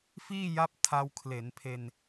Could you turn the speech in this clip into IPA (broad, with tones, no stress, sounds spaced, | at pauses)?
f iː˥˩ j a˦˥ p̚ tʰ a˧ w kʰ l e˩˦ n pʰ e˧ n